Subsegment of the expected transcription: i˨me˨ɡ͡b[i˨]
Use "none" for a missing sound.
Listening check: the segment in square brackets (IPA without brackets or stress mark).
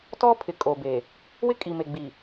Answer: i˨